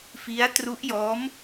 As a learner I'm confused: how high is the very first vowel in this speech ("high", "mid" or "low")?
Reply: high